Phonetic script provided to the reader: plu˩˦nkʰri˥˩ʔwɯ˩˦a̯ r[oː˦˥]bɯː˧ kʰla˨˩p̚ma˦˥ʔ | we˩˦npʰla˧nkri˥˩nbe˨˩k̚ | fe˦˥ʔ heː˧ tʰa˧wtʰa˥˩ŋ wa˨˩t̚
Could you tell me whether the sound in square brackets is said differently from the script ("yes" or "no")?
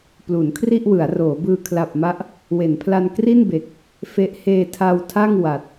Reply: yes